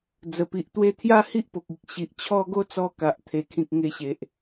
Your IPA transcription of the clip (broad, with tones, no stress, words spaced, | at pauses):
d͡zə˨˩pi˨ʔ t̪we˦ t̪ʰja˦hi˦ʔ po˨k̚i˨k̚ ɕi˨ʔt͡ɕʰɔ˦ ɡo˦t͡sɔ˧ ka˨ʔt̪ʰe˨˩kʰĩ˨k̚ ŋe˧ɕe˨ʔ